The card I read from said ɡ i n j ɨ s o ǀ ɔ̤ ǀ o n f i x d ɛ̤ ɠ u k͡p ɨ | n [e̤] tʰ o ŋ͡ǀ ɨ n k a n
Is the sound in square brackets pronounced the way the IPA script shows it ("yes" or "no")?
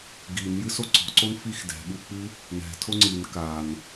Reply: no